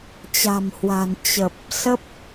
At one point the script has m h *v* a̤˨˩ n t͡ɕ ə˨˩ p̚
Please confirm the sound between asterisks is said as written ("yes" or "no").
no